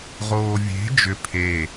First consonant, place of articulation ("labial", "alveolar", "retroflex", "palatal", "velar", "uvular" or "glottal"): uvular